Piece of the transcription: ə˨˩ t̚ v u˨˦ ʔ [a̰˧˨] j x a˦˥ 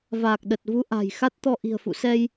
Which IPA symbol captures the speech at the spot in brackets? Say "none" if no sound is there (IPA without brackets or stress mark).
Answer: a̤˨˩